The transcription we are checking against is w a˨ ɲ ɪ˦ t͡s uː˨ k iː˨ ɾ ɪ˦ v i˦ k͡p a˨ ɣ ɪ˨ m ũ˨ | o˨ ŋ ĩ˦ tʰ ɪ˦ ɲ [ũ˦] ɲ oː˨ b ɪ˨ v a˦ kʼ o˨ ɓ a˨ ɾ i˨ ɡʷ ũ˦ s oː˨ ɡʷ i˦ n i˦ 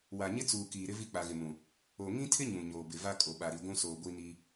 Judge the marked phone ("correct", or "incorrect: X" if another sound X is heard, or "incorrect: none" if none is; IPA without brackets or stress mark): incorrect: ũ˨